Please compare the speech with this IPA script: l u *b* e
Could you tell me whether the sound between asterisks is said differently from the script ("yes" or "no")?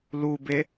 no